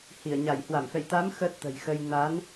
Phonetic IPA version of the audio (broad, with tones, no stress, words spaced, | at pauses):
hi˧˩ə̯ ɲa˧˩jhwa˧˩mfɛ̰˧˨j t̪a˨˦m xəː˦˥t̚t̪ə̤˨˩jxə˧j na˨˦n